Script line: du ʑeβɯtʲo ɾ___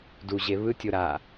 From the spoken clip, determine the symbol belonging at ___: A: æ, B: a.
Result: B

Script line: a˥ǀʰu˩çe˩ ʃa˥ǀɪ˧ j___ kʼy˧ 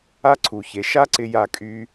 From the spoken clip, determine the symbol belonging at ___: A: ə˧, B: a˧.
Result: B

